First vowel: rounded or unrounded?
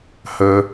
unrounded